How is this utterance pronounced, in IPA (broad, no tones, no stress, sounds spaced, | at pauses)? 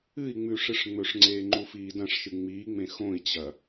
ɨ i̯ ŋ͡m ʉ ʂ ɨ ʂ ŋ͡m ɵ ʂ ŋ͡ǀ eː ŋ͡ǃ u f iː d ɐ̃ ʂ ʃ ɨ ŋ͡m iː ŋ͡m ẽ x õ i̯ t͡ɕ ɐ